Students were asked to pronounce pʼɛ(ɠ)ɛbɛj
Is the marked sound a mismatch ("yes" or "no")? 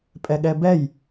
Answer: no